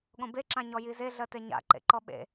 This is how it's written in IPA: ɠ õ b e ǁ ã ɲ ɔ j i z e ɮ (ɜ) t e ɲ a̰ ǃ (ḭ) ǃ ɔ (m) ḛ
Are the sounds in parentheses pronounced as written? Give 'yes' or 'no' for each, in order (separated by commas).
yes, no, no